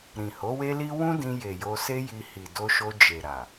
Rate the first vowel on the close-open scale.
close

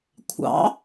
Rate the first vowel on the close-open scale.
open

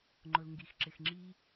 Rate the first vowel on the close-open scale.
close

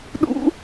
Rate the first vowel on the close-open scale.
close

